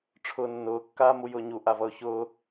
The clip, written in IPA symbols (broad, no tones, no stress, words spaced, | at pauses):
ʈ͡ʂʰʊːnːʊː kːaːmujʊːɲu ʔavʌʊ̯çʊː